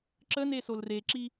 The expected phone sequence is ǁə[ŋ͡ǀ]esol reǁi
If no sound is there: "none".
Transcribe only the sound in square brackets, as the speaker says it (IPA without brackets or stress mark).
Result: n